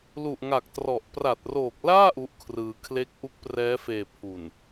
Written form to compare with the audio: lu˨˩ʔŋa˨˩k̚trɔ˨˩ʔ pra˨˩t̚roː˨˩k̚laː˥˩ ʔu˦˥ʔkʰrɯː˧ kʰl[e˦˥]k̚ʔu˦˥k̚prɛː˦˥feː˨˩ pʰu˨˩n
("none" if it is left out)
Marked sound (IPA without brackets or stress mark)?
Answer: e˦˥